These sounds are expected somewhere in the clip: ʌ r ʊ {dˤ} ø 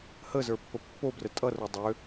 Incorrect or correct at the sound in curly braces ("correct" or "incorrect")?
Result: correct